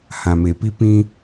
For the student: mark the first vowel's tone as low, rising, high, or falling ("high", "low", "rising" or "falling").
low